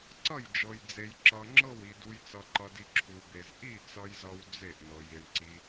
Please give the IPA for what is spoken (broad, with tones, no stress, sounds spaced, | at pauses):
ǀ ʌ˥˨ j d͡ʒ ɤ˧ j d͡z e˧ j ǁ ʌ˧ ŋ͡ǁ ɤ˥˨ w i˧ d u˧ j t͡s ʌ˧ ǃ ʌ˧ d i˧ ǁʰ u˧ b e˧ z ʔ i˥˨ t͡s ʌ˧ j z ʌ˧ w d͡z e˥˨ ʔ n ɤ˧ j i˧ ɳ ǀ i˧